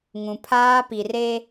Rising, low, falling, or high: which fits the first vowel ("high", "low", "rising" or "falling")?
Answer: low